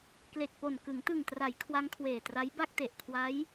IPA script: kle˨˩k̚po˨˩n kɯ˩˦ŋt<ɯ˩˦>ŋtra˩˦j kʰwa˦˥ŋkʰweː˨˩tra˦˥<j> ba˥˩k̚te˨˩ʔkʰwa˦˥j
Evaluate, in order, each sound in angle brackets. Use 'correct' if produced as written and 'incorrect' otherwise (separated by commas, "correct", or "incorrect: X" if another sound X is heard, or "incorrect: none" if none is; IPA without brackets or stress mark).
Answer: incorrect: ɯ˨˩, correct